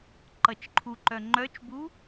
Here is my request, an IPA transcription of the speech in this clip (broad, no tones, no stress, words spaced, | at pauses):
ǃʌt͡ʃǃʰuǃœ ŋ͡ǃœt͡ʃbu